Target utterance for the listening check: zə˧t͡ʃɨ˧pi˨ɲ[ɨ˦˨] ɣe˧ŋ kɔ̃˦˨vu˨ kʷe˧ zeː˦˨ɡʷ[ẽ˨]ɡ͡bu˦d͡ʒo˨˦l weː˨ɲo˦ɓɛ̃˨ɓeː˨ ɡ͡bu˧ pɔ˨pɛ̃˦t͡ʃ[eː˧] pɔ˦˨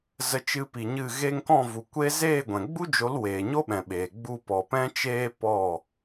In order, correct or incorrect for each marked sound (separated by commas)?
correct, incorrect, incorrect